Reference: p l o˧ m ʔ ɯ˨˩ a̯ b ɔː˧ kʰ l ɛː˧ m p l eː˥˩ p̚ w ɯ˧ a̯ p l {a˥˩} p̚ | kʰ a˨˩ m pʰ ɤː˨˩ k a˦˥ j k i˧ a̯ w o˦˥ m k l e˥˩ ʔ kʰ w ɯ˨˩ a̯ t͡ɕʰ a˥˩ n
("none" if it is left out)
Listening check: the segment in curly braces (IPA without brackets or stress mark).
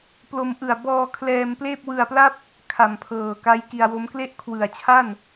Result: a˥˩